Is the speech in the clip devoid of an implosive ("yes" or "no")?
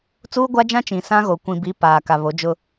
yes